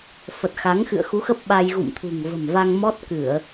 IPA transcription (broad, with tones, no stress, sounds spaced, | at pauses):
f ə˨˩ t̚ x a˨˦ ŋ x ɨ̰˧˨ ə̯ x u˨˦ x ə˦˥ p̚ ɓ a˧ j ɣ ṵ˧˨ m t̪ʰ ṳ˨˩ ŋ v ə̤˨˩ m v a˧ ŋ m ɔ˦˥ t̚ k ɨ˧˩˨ ə̯